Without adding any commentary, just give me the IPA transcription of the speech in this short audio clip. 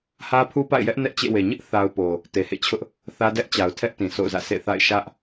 hä˦pʰu˦pa̰˦˨ɪ̯jɛ˦ʔ nɛ˦ʔt͡ɕḛ˦˨we˨ ɲɪ˦ʔ θa˦ʊ̯po˨ | te˨hḛ˦˨t͡ɕʰʊ˦ʔ | θä˦dɛ˦ʔt͡ɕa˨ʊ̯tʰɛ˦ʔ tĩ˨sʰo̰˦˨ʊ̯zä̰˦˨ sʰḛ˦˨θa̰˦˨ɪ̯ ʃä˦ʔ

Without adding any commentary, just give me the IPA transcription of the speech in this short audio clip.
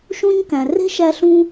ʃũ˦ɲkæ̃˨ re̤˦ʃæ˧ɬũ˧

